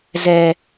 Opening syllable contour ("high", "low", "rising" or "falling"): low